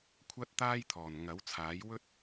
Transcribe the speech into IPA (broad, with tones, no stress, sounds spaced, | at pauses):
kʷʰ ɐ˥ t̚ t̪ aː˥ j t̪ʰ ɔː˨˩ n ŋ ɐ˨˥ w t͡sʰ aː˨˥ j w ɵ˥ t̚